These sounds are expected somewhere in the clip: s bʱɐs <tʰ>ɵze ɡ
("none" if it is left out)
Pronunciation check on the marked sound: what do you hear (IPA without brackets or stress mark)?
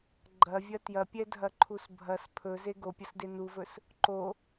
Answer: pʰ